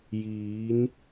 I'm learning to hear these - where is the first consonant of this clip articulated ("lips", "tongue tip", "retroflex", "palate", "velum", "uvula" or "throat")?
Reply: palate